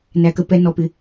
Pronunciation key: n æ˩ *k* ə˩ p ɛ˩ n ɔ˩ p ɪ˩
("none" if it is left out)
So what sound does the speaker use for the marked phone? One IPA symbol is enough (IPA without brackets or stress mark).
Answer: k